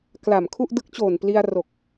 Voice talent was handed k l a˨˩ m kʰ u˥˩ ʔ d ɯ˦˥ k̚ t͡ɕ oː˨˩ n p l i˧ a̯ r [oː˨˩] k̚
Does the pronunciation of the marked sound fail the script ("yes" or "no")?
yes